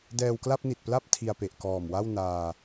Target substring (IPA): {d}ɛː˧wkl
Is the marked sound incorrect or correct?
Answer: correct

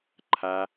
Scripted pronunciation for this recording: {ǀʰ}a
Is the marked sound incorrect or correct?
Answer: incorrect: ǃʰ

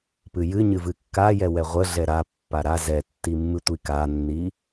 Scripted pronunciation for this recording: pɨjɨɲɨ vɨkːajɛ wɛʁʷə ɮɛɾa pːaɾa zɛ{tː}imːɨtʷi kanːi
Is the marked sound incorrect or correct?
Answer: correct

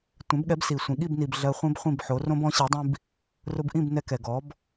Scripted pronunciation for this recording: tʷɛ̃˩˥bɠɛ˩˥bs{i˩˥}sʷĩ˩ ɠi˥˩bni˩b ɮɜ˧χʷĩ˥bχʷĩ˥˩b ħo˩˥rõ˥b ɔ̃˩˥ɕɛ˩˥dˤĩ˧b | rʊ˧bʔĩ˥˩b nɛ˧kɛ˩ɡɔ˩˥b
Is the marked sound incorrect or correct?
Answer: incorrect: i˩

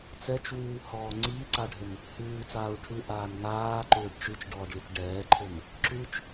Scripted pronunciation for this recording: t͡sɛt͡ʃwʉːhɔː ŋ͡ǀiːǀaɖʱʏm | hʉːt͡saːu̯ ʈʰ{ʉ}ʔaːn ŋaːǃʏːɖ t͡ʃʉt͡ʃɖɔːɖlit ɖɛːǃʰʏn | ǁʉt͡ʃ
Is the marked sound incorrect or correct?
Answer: correct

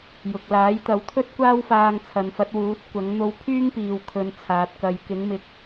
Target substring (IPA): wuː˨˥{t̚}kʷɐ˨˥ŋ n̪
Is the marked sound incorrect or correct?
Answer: correct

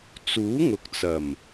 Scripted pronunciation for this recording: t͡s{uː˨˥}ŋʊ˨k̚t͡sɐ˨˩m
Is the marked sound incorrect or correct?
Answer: correct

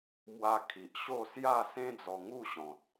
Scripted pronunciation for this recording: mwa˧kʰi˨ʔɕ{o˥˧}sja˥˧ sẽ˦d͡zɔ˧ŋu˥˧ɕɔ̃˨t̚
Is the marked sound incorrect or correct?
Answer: correct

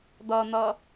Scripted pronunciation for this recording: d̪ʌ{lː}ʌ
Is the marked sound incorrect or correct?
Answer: incorrect: n̪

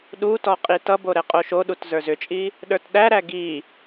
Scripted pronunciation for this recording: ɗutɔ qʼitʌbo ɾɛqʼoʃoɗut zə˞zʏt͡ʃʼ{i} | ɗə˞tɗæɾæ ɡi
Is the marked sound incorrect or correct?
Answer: correct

